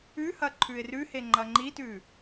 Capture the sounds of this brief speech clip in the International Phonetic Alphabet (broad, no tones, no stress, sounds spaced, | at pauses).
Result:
ʉ h ɐ ǃʰ ʉ ɪ̯ r ʉ h e ŋ͡ǃ ɐ ŋ͡ǃ i t ʉ